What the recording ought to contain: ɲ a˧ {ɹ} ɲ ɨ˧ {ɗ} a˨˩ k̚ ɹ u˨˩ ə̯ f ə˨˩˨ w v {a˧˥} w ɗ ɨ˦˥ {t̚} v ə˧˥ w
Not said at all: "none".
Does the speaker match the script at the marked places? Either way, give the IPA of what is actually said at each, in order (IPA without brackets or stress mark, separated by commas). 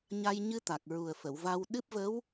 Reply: j, t̪, a˧, p̚